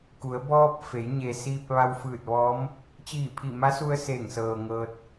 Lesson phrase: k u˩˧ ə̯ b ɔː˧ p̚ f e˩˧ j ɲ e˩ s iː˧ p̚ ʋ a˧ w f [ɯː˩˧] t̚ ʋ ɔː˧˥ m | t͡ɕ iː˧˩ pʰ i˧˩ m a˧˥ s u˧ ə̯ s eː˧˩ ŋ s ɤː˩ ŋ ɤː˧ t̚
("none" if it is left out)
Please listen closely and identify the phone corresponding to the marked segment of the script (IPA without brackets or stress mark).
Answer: ɯː˧˩